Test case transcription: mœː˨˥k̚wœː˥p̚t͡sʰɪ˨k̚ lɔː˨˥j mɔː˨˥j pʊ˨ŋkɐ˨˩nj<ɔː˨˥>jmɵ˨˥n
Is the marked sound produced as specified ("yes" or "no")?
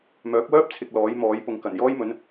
no